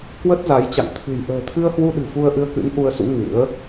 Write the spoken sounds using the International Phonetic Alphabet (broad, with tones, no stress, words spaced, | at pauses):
kwə˦˥t̚za˨˦j t͡ɕa̰˧˨ŋ t̪ʰɨ̤˨˩j ʔə̤ː˨˩t̪ʰɨ˧ə̯hwu˧ɗɨ̤˨˩ fu˧ə̯ʔɨ˧ə̯kɨ̰˧˥n ʔu˧ə̯sṵ˧˥ ŋɨ̰˧˥ə̯